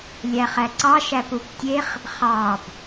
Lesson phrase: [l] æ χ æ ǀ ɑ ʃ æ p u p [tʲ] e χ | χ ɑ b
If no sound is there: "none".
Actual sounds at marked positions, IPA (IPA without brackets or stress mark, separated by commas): lʲ, tʲ